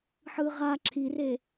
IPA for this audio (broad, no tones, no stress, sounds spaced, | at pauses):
ħ ɯ ʁ a ǁʰ i r e